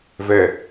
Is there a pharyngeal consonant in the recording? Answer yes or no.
no